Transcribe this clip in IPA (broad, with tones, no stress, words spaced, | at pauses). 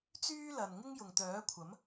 t͡syː˥lɐ˨n ŋɪ˥ŋjʊ˨ŋ t̪œː˨˥kʷʰɐ˨˥m